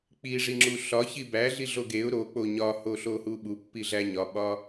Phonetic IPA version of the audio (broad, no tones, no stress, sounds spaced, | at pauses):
k͡p i ʐ i ŋ͡ǁ u ɬ ɒ ç i b æ ɮ i ɮ o ɡ e ʊ̯ ɾ o k͡p o ɲ ɒ h o ɬ o h u ɓ u pː i ɮ æ ɲ ɒ ɓ ɒ